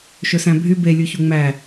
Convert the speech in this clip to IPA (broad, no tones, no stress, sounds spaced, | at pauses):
ʃ ɵ s æ̃ bʱ y b e lʲ u ç u ŋ͡m æ